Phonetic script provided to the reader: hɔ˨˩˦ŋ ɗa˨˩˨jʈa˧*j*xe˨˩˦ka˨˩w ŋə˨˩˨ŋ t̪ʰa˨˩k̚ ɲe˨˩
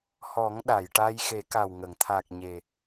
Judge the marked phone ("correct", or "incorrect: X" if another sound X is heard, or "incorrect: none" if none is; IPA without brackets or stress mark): correct